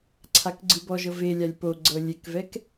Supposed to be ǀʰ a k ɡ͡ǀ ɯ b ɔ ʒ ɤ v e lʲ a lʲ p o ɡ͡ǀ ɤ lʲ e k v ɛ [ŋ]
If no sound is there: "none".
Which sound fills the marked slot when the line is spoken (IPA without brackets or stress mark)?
k